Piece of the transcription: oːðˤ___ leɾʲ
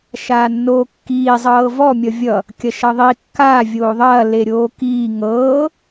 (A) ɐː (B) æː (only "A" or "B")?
A